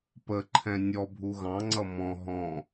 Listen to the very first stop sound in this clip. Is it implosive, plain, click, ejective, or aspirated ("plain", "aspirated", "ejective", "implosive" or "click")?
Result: plain